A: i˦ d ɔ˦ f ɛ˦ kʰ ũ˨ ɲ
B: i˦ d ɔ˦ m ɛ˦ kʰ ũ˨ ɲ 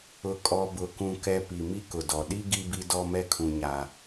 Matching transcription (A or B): B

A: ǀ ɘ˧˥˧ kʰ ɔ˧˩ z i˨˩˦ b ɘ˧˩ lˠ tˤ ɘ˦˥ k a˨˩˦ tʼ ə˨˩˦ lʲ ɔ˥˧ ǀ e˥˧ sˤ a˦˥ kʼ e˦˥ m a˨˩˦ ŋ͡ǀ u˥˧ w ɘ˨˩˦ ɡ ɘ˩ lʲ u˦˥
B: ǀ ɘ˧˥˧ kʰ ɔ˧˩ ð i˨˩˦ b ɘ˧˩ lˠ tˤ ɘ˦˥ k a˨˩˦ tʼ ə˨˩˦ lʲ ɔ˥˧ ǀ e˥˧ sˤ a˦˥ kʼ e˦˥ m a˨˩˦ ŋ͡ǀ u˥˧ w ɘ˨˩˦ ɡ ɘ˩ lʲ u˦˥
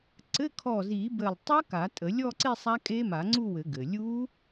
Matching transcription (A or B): A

